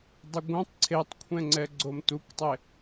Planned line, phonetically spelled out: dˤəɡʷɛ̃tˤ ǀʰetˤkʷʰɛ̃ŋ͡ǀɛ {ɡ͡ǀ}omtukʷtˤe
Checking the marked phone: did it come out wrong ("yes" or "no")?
no